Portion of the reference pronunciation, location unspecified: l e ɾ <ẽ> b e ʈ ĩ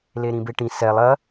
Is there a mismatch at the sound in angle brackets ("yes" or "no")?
yes